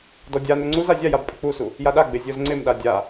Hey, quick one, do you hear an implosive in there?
yes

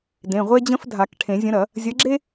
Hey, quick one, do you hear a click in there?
yes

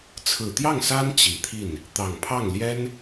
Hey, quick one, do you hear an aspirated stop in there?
yes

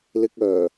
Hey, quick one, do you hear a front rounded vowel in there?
yes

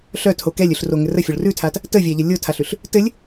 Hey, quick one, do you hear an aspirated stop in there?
yes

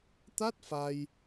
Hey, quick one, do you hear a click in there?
no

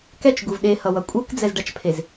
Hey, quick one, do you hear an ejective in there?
yes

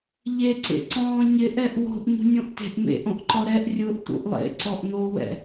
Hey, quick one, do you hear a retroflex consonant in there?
no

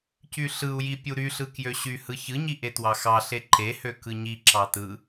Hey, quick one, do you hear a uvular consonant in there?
no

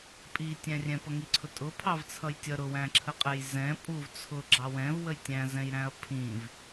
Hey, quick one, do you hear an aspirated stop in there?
yes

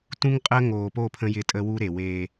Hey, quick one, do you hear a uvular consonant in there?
yes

